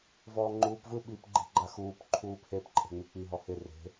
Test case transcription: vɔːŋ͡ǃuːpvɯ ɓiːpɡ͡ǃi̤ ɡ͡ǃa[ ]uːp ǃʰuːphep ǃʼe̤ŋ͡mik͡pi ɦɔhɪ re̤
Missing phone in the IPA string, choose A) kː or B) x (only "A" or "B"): B